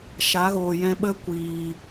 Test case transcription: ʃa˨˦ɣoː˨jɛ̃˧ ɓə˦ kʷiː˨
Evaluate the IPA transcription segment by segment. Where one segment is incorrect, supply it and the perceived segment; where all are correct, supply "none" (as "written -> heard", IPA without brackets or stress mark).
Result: none